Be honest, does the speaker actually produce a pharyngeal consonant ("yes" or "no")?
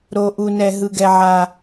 yes